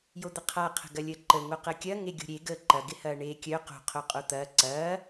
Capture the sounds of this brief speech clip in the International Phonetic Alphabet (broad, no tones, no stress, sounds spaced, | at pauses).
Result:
j o d̪ ə qʰ a qʰ ə̤ ɡ ɐ lʲ əː ǃ ə ŋ o q əː kʲ ɐ ŋ e ɡʲ o̤ ɾʲ e ɡ əː ǃ ɐ ɡ ɪ h ɐː ɳ eː kʲ œ q o̤ qʰ o qʼ o t̪ ɐː ǀ ɐː